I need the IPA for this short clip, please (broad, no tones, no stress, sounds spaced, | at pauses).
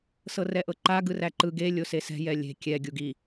s ɤ r ɛ ʔ ɤ ǃ a ɡ ɯ r æ ǃ ɯ ɡ e lʲ o s e s ɛ̤ j ɛ lʲ e̤ kʲ ɛ ɡʲ u ɡ i